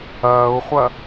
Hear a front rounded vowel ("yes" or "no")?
no